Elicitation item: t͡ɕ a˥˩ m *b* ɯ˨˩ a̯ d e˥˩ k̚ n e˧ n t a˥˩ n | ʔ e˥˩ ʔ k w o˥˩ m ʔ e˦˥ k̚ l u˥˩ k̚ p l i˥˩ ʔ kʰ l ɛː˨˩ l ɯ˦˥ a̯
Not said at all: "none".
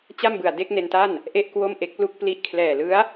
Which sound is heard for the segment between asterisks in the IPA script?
b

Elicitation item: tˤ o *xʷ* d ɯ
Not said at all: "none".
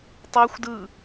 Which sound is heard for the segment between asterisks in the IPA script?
xʷ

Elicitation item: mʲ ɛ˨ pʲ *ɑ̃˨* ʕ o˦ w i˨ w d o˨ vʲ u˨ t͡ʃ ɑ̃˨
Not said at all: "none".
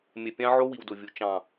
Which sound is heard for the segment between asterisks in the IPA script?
ɑ̃˦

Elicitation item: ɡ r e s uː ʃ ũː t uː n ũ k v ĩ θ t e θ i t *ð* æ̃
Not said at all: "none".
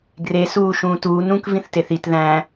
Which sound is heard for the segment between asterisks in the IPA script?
ð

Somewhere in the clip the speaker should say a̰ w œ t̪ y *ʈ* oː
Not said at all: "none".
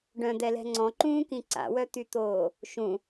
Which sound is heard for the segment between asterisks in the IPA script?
t̪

